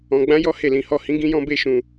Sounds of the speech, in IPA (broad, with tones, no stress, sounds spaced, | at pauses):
ɔ̃˧ ɡ͡b ã˦ j ɔ˦ h e˦˨ l ĩ˨˦ h ɔ˦˨ h ĩ˨˦ ɡ ĩ˧ j ɔ̃˧ b e˦ ʃ ũ˧